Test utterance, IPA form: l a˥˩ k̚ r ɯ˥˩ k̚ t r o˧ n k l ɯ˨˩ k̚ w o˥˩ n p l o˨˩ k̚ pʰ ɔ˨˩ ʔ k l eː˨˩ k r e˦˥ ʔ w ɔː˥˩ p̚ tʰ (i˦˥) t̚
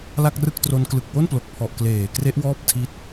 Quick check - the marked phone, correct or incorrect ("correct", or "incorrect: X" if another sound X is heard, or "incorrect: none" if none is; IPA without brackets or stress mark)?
correct